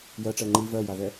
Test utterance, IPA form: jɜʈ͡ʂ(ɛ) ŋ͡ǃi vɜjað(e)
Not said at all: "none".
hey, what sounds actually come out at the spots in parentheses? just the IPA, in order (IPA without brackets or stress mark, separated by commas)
ɜ, ɛ